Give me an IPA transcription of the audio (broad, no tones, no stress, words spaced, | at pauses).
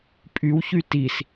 pʼywçy tis